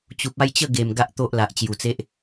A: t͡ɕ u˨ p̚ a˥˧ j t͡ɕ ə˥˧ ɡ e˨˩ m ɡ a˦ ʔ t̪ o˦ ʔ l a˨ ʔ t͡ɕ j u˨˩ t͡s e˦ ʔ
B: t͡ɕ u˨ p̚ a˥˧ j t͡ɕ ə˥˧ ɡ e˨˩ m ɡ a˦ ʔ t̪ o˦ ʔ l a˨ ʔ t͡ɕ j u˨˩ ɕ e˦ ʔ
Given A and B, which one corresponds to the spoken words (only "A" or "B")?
A